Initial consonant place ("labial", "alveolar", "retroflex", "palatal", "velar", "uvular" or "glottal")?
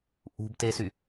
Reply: glottal